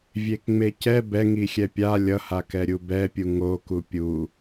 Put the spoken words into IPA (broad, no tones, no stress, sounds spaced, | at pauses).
vʲ e k ŋ͡m e c ɛ b ɛ ŋ i xʲ ɛ pʲ a lʲ ʌ h a k ɛ ɾʲ u b ɛ pʲ u ŋ o k u pʲ u